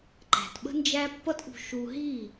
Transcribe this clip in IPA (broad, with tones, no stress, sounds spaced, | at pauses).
ǃ æ̤˨ t ɓ ə̤˦ n d͡ʒ æ˦ pː ʌ˦ t ʔ ṳ˧ ʃ u˧ ɦ i˦˨